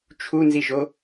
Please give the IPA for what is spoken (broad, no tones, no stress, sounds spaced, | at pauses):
t͡ʃʰ u n z i ʒ o